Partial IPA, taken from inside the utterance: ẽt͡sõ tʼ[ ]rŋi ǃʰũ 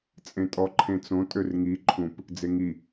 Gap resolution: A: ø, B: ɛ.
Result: A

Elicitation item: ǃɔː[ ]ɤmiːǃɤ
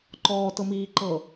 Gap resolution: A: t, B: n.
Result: A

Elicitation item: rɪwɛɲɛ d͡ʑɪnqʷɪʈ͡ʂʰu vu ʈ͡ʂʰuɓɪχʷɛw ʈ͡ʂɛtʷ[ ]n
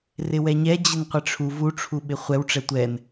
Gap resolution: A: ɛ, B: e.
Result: A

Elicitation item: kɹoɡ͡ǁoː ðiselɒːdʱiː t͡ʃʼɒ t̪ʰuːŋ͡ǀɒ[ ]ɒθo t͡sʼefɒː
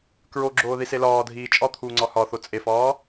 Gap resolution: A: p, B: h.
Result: B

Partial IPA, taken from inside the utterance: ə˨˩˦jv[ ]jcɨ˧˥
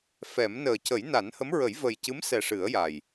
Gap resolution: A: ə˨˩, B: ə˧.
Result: A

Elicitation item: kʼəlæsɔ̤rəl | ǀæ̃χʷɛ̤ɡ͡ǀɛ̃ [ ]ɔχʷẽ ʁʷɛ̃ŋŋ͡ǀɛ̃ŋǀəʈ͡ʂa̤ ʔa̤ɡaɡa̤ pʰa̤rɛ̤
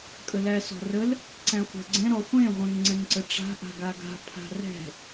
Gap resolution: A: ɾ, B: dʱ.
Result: A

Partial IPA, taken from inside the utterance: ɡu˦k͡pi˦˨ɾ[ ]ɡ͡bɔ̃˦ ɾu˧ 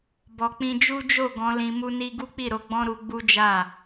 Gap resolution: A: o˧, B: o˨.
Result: A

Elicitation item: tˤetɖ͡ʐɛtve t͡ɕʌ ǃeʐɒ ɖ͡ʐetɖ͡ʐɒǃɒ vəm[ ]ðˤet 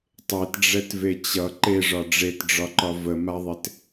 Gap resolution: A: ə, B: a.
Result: B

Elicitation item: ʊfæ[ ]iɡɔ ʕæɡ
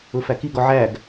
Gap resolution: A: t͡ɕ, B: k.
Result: B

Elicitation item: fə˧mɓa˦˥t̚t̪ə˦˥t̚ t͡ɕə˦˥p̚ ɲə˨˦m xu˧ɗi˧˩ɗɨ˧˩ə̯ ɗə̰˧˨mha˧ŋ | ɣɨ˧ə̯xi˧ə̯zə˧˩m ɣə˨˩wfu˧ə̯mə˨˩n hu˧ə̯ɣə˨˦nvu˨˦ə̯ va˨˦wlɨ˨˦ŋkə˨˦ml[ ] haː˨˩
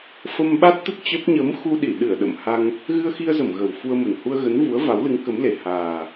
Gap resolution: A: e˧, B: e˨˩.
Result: B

